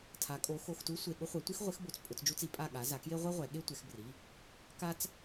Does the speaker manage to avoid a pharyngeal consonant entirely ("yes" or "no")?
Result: yes